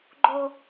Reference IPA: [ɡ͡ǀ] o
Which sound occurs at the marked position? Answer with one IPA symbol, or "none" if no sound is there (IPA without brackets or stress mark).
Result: ɡ͡ǃ